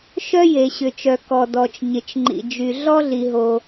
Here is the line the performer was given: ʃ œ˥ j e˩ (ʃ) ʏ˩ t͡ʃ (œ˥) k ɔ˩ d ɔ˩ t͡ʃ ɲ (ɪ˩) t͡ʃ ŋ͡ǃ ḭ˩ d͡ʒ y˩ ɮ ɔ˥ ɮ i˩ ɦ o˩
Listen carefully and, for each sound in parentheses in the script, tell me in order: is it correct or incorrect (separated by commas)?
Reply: incorrect, incorrect, correct